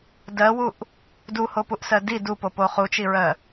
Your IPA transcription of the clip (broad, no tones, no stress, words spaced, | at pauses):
dɜwuʔ | duhopuʔsɜ di dupopo χut͡ʃiɹɜ